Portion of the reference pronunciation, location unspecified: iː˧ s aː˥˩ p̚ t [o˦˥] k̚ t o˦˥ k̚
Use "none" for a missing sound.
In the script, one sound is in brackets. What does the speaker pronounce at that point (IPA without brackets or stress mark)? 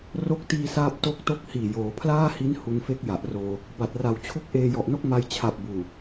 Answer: o˦˥